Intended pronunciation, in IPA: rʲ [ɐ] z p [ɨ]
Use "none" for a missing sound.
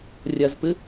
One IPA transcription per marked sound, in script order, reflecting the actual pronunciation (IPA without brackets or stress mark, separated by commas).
ɐ, ɨ